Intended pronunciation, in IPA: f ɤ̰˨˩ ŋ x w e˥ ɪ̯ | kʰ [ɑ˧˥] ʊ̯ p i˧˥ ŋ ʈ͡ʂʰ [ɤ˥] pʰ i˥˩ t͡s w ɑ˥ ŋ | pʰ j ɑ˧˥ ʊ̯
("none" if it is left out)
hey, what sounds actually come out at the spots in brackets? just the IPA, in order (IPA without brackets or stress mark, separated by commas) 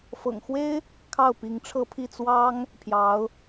ɑ˥˩, ɤ˥